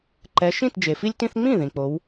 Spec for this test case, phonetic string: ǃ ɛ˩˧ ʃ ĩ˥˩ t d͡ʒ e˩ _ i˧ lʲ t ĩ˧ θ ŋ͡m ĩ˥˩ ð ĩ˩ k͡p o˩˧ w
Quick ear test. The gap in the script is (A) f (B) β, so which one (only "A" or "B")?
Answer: A